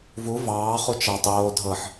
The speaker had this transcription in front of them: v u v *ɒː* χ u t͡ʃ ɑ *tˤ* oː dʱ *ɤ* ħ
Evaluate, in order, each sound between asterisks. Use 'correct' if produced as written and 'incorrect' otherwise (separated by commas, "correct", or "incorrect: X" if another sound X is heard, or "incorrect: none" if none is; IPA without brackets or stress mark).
incorrect: ɑː, correct, correct